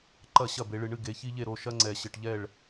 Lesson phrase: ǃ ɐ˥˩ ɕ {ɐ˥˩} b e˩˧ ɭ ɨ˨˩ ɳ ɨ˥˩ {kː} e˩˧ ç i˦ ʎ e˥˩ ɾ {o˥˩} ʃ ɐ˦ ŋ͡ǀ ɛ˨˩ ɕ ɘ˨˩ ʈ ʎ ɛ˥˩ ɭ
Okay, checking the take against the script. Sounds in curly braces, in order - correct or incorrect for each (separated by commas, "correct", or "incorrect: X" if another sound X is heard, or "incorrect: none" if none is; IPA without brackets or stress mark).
correct, incorrect: ɡ, correct